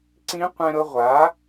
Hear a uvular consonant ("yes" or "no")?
yes